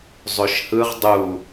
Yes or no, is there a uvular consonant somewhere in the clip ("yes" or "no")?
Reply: yes